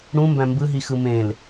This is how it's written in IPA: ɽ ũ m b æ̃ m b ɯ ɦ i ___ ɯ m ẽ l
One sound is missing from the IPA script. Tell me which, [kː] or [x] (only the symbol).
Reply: x